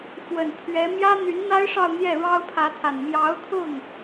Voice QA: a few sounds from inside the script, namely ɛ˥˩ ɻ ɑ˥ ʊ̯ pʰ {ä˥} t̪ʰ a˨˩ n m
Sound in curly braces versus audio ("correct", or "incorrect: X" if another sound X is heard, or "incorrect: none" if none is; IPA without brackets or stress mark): incorrect: ä˧˥